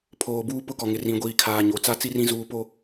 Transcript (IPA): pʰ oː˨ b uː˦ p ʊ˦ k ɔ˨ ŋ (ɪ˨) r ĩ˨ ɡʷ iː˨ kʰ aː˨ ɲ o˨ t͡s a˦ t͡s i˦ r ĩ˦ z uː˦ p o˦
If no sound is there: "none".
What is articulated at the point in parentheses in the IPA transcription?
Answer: ɪ˨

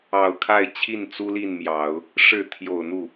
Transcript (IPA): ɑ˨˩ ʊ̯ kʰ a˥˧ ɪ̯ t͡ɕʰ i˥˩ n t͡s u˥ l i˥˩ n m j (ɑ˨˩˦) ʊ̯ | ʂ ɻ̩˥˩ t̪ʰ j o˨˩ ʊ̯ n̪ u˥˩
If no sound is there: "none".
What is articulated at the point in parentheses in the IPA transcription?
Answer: ɑ˨˩˦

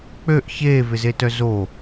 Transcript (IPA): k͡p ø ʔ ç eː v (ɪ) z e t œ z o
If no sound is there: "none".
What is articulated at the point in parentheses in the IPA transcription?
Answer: ɪ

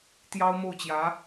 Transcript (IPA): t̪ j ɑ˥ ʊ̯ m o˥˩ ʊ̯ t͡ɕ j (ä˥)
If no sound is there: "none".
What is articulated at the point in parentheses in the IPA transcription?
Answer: ä˧˥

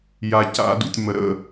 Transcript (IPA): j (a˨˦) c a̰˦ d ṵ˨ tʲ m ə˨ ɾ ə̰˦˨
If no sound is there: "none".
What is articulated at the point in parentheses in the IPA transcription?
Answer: a˧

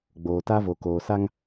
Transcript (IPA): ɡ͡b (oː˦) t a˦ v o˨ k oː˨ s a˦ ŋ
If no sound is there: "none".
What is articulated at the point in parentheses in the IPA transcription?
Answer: oː˨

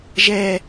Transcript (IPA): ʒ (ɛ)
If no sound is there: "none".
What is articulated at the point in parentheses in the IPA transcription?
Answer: ɛ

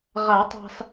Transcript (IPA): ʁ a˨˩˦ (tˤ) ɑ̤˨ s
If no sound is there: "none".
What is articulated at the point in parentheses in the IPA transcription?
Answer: tˤ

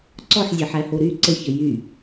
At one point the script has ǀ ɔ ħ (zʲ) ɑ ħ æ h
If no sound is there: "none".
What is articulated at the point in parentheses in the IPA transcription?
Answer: zʲ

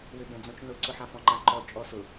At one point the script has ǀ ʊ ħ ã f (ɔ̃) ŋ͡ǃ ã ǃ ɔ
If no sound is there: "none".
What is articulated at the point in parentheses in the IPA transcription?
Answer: ɔ̃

